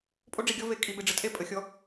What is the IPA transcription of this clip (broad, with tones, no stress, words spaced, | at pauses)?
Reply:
pʼo˦ɖ͡ʐi˨ɡʲɔ˦ ve˨ kʼi˨ be˨ɖ͡ʐə˦tʼe˦ pʼə˨xʲɔ˦